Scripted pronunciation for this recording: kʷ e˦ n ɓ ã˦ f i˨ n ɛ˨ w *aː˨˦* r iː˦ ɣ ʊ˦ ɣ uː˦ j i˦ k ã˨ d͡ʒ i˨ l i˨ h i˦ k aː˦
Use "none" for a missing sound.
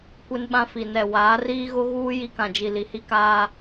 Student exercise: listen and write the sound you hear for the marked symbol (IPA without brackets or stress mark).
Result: aː˨˦